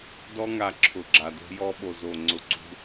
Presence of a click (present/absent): present